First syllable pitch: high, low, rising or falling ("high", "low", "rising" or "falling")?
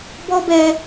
high